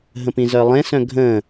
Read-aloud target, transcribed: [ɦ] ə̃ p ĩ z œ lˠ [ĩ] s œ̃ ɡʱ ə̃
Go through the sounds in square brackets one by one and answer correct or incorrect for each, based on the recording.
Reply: correct, incorrect

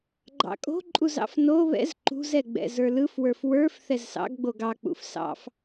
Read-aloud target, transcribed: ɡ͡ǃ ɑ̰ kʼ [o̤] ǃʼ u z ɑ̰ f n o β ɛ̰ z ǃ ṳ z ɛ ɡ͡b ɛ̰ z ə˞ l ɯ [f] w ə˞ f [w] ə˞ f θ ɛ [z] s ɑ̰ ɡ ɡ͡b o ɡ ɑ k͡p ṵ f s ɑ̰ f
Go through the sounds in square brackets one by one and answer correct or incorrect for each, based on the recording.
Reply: correct, correct, correct, correct

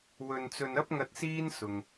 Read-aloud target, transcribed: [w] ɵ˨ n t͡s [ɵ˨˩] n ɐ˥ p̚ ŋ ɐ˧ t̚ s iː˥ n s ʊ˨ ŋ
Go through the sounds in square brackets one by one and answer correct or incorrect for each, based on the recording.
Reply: correct, incorrect

